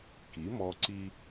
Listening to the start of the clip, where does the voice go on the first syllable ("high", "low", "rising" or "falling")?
rising